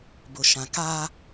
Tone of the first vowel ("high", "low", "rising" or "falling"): low